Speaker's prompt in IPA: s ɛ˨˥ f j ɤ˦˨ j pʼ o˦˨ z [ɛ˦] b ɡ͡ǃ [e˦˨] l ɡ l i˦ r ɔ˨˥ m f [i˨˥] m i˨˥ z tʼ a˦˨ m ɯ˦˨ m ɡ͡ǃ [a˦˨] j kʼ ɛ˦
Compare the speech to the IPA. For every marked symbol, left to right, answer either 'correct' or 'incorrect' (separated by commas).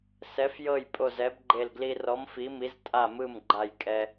incorrect, correct, correct, correct